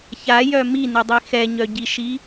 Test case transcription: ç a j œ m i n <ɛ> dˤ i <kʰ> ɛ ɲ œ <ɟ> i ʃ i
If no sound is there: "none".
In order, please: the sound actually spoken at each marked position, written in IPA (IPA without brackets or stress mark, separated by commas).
ɛ, x, ɟ